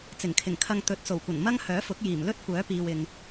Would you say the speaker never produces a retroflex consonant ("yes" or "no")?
yes